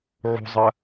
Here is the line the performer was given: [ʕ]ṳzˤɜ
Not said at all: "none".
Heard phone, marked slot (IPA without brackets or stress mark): ʕ